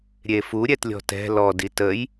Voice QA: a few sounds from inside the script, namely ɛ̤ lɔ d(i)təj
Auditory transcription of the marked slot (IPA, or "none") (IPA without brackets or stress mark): i